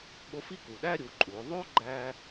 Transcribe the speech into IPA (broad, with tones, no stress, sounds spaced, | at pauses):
ɓ o˧˥ f i˥ k u˩ ɗ æ˥ ɾʲ u˩˧ ǃʼ u˩˧ o̯ ðˤ o˥ ɡ͡ǃ æ˥